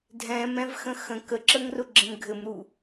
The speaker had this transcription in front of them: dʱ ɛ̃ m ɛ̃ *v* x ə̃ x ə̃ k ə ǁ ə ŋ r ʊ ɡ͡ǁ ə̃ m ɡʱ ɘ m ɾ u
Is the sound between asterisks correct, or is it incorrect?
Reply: correct